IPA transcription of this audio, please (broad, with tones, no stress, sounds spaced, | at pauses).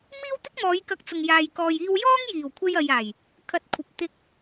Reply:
m iː˥ w t̪ ɪ˥ k̚ m ɔː˨˧ j k ɐ˧ k̚ t͡s ʊ˨ ŋ j aː˨ j k ɔː˨ j iː˧ w j ɔː˥ ŋ j iː˨˩ w kʷʰ e˧ j ɐ˨ j aː˨˩ j | kʰ ɐ˨ t̚ kʷʰ ɐ˨ p̚ t̪ ɪ˨ k̚